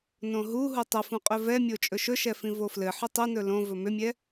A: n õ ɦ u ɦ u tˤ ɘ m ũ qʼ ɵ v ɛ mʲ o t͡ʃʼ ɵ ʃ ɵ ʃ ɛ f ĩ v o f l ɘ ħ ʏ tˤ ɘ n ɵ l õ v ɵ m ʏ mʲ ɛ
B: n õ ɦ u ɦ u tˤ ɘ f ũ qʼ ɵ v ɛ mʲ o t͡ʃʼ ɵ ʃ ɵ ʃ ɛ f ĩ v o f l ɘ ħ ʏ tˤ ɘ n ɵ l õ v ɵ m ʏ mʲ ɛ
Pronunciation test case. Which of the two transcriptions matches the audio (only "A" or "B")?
B